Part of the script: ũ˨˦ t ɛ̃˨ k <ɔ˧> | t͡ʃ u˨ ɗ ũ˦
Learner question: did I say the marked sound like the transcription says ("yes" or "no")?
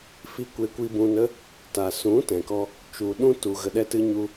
yes